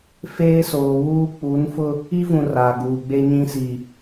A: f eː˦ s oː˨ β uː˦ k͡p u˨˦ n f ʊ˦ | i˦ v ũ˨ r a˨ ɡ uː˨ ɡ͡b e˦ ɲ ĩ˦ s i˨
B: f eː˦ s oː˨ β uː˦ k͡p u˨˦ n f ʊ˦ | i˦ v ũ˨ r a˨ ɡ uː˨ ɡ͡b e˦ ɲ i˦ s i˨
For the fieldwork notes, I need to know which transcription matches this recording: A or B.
A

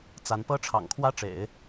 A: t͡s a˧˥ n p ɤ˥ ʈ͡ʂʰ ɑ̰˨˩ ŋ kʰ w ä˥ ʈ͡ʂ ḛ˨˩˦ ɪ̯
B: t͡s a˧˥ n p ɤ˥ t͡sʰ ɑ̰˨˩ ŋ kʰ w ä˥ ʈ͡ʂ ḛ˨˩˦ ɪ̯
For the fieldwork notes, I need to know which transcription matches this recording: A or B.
A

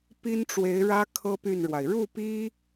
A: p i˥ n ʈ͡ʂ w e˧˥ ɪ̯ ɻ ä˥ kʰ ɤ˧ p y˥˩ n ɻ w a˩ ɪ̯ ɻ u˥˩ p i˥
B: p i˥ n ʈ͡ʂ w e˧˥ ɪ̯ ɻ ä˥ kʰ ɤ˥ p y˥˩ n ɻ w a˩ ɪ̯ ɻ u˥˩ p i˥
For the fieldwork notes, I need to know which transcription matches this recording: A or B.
B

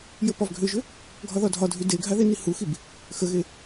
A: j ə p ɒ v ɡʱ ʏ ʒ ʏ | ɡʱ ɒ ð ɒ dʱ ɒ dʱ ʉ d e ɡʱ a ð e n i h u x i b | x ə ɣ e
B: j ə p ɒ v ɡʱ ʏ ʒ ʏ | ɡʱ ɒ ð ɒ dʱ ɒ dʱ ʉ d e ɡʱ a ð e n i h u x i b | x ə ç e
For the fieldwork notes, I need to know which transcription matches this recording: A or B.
A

